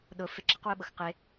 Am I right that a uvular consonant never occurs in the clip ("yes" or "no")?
no